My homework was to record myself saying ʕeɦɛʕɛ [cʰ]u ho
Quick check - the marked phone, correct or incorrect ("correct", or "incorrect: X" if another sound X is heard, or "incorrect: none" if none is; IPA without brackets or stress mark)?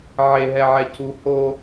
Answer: correct